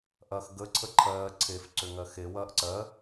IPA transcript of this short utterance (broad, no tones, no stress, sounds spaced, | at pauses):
ʔ ɐː x ɡ ə ǀʰ ə ǃʰ ɜː ǀʰ e f ǀ ʏ ŋ ɜ x e w ɐː ʔ ǀ ɜ